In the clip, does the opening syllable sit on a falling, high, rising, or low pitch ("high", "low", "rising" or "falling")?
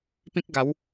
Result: high